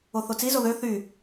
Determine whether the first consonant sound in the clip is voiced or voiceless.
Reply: voiceless